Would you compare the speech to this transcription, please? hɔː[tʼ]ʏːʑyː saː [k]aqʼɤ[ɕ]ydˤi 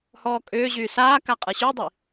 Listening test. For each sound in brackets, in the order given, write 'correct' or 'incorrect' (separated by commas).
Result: incorrect, correct, correct